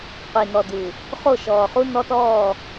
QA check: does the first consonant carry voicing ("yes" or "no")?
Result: no